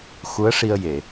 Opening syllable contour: rising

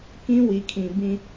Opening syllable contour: high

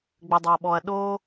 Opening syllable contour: low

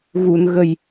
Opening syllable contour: low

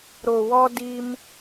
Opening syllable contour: low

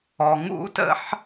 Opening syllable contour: low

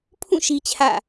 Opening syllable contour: falling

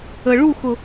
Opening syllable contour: low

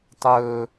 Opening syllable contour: high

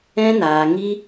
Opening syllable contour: high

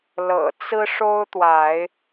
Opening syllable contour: low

